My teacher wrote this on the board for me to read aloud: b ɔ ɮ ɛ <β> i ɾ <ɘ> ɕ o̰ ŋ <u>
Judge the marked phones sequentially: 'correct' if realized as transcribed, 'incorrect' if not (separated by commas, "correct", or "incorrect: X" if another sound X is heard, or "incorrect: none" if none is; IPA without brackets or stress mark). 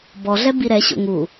incorrect: b, incorrect: ɛ, correct